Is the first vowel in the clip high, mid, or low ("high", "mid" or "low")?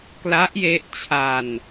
low